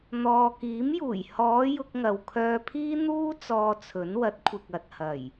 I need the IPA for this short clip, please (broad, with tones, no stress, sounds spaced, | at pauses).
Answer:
n̪ ɔː˨ k iː˨˥ m j uː˨˩ j h ɔː˨˧ j ʊ˧ k̚ ŋ ɐ˨ w kʰ œː˧ pʰ iː˥ n̪ uː˥ t͡s ɔː˧ t͡sʰ ɵ˨˥ n w ɐ˨˥ t̚ kʷʰ ɪ˨ k̚ ɐ˨ t̚ h ɐ˨˩ j